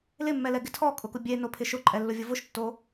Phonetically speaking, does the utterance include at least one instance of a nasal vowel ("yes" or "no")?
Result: no